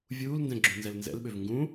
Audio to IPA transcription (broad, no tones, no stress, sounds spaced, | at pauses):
vʲ uː l n d ɛ̃ ɡ͡ǁ ũ n z ɛ l n z ɛ̰ l ɓ ø v ŋ ɡ ũ